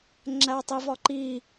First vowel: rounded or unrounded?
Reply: unrounded